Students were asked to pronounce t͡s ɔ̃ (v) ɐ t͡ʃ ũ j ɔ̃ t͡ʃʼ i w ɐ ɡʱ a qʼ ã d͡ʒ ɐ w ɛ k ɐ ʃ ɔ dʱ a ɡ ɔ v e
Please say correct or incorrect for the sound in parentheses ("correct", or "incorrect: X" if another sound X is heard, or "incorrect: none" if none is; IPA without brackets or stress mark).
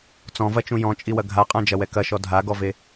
correct